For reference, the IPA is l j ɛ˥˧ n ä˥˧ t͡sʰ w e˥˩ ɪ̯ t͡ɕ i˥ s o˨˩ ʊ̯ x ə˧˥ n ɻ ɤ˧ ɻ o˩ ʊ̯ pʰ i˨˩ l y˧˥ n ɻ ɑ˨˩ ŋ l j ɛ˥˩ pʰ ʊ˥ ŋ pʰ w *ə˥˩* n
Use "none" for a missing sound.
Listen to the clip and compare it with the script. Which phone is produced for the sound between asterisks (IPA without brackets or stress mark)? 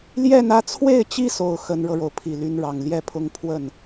ə˥˩